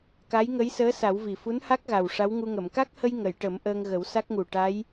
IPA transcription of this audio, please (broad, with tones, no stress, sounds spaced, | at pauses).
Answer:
k a˧˥ j ŋ ə˧˥ j s əː˧˥ s a˨˩˦ w v i˨˩ f u˧˥ n h a˦˥ k̚ ɣ a˨˩ w ʂ a˧˥ w ŋ u˧ ŋ ə˨˩˨ m k a˦˥ k̚ h ə˧ j ŋ ə˨˩˨ j ʈ ə˨˩˦ m ʔ əː˧ ŋ ɣ ə˨˩˦ w s a˦˥ k̚ ŋ u˨˩ ʈ a˧˥ j